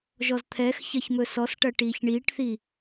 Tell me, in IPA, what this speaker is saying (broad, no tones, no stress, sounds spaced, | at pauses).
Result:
ʒ ɔ z t̪ʰ ɛ x ç ɐ ç m ɵ s ɔ s ʈ ɐ ʈ iː ç ɳ iː ʈ θ i